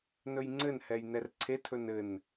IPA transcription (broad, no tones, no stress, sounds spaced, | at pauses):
n ɵ j ŋ͡ǀ ɘ n h ɛ j n ɛ r ǀʰ e tʰ ɵ n ɘ n